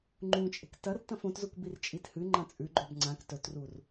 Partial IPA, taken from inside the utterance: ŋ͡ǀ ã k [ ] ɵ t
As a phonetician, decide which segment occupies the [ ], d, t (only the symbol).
t